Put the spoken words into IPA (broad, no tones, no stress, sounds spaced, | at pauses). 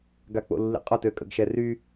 ɡ a k͡p o̰ lː ḭ qʼ ɔ t ø kʼ ə̰ ɡ ʃ ɛ r y